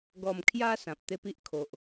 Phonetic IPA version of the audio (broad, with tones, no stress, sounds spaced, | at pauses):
ɡ ɔ˨˩ m kʰ j a˧ s ã˨ p̚ t̪ e˦ p i˦ ʔ kʰ o˨ ʔ